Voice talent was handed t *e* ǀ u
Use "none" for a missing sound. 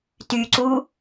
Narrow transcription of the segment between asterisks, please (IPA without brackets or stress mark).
y